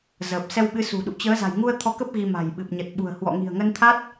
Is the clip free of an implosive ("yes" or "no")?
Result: no